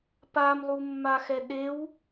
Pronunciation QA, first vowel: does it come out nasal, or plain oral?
oral